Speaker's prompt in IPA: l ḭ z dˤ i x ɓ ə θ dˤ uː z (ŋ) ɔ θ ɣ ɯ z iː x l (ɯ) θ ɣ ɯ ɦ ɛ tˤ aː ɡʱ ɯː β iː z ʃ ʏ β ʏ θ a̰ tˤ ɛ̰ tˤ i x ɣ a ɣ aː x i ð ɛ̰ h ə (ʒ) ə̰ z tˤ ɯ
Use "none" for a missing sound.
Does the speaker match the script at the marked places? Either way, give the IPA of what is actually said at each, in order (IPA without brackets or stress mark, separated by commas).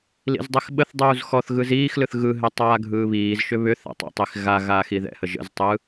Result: x, ɯ, ʒ